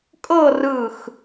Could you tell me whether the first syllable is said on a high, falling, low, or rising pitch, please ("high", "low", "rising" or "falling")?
falling